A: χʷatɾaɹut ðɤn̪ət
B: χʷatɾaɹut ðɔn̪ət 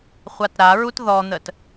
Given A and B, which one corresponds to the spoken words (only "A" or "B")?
B